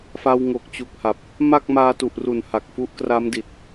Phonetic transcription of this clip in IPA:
f a˧ w ŋ o˨˩ k̚ t͡ɕ u˨˩ k̚ h a˨˩ p̚ | m a˥˩ k̚ m aː˧ t u˨˩ ʔ r u˨˩ n h a˨˩ k̚ f u˦˥ ʔ k r a˦˥ m d i˨˩ t̚

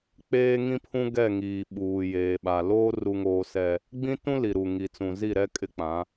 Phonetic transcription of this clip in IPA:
k͡p eː˦ ŋ ĩ˦ pʰ ũ˦ ɡ ɛ˦˨ ŋ iː˨ ɓ uː˨ j eː˨ ɓ a˨ l oː˦ r u˦ ŋ oː˦ s ɛ˦ | ɡ͡b ĩ˦ t ũ˦ l i˨ ɾ u˨ ŋ i˨ t͡s ũ˨ z i˦˨ ɾ ɛ˦ kʼ ɪ˦ k͡p ã˨˦

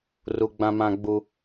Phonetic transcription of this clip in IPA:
r u˨ ɡ͡b ã˨ m ã˨ ɡ͡b u˦

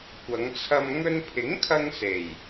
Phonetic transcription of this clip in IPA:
kʷ ɐ˨˧ ŋ t͡sʰ ɐ˧ m ŋ ɵ˧ n pʰ ɪ˨˥ ŋ kʰ ɐ˧ ŋ s e˨˩ j

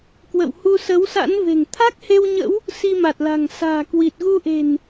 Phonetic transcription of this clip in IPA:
k w ə̰˧˨ w h u˧ s ə˨˦ w s a̰˧˥ n v e̤˨˩ ŋ t̪ʰ a˦˥ k̚ h e˧ w ɲ ə̰˧˥ w | s i˧ m a˨˩ t̚ l a̤˨˩ ŋ s a̤ː˨˩ k w i˨˩ t̚ ɣ u˧ ʔ e̤˨˩ n

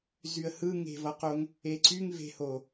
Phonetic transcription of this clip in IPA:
z y ə̯ h ɯ ŋ e̤ v ʌ q o ŋ | e ǀ y ŋ v e̤ h o

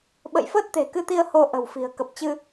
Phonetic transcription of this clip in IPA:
ɓ ə̰˧˨ j f əː˦˥ t̚ t̪ e̤˨˩ k ɨ˧ t̪ i˧ ə̯ h o˧ ʔ ə̤˨˩ w f i̤˨˩ ə̯ k ə˨˩ p̚ t͡ɕ ɨ˧

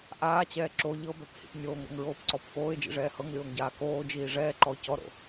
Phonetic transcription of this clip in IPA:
ʔ aː t͡ɕ ɛː ǁ o ʎ ɤ b ɛ p h ḭ p nʲ oː ŋ ɾ o̰ ŋ ɹ oː p ǀ ɔ p f oː ɪ̯ d͡ʒ ḭ ʐ ɛː h ɤ ŋ lʲ oː ŋ ɟ aː k oː d͡ʒ iː ʐ ɛː ǃ ɔ ʊ̯ c ɔ ɾ o̰

